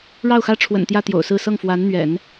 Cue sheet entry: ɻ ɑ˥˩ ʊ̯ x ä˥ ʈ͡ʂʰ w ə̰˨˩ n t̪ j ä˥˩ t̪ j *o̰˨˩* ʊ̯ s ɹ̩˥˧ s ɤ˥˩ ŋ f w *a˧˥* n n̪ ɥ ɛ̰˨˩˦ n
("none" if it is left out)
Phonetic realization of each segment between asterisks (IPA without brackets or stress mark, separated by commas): o̰˨˩, a˧˥